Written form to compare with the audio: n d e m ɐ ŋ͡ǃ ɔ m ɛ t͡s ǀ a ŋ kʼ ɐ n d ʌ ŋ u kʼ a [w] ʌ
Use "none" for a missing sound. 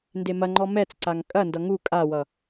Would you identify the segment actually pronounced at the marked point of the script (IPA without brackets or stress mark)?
w